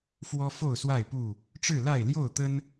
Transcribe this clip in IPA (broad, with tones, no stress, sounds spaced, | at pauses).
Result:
f w ɔ˦ f o˥˨ ʊ̯ s w a˥˨ ɪ̯ p u˥˨ | ʈ͡ʂ ɻ̩˥˨ l a˥˨ ɪ̯ l j o˥˨ ʊ̯ t̪ ə˦ n